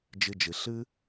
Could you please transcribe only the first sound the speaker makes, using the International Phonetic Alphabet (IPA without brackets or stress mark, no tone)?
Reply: d͡ʒ